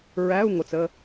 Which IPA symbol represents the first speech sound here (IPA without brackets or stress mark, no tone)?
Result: ɹ